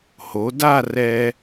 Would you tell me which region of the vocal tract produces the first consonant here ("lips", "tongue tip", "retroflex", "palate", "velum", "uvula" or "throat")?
throat